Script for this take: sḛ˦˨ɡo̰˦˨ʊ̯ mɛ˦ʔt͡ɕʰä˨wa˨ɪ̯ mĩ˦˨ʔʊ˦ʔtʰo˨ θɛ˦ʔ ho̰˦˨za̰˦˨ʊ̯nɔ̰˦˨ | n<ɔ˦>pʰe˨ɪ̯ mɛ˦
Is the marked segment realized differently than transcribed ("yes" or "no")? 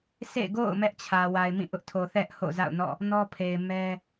no